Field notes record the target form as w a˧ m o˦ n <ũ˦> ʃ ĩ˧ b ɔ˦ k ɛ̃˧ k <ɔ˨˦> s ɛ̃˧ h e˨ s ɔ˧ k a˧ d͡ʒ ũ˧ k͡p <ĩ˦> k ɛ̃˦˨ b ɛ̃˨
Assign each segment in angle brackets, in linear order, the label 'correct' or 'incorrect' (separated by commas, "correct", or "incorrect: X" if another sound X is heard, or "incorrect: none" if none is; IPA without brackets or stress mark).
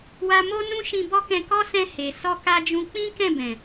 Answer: correct, incorrect: ɔ˦, correct